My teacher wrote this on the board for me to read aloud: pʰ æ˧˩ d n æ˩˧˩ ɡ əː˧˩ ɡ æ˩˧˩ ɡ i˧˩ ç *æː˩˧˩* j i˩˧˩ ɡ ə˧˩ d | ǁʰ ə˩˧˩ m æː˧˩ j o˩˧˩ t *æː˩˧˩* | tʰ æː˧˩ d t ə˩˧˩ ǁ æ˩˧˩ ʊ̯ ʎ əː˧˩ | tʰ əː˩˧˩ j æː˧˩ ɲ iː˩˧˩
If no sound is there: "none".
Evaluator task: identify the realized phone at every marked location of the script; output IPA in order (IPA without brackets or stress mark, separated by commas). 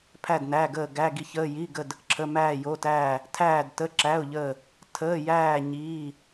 əː˩˧˩, æː˧˩